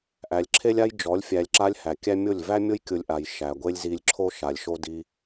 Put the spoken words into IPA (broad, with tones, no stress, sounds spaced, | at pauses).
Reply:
ʔ æ˨ lʲ ǁʰ e˦ lʲ a˦ j d͡ʒ ɔ˨˦ lʲ fʲ æ˨ lʲ ǁ a˧ lʲ h æ˨ kʲ æ˦ mʲ o˦˨ lʲ v æ˦ mʲ o˦ j kʲ ʊ˧ lʲ ʔ a˨ j ʃ æ˨ ɡʷ e˦ lʲ z i˧ lʲ ǁʰ o˦ ʃ a˨ lʲ ʃ o˦ d i˧